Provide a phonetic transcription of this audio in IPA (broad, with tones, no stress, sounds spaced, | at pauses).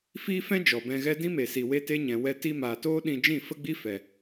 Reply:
f iː˦ f ɛ̃˦ d͡ʒ ɔ˨ b ɛ̃˧ ɣ ɛ˦ d ĩ˦ m e˨ s i˨ w e˧ t e˧ ɲ ɛ̃˨ w ɛ˧ t i˧ m aː˨ t oː˦ ɗ ĩ˧ d͡ʒ ĩ˦˨ f ə˦ ɡ͡b i˦ f ɛ˨